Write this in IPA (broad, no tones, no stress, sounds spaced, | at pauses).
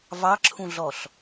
v ɑ ǁʰ ũ ɮ ɔ ɬ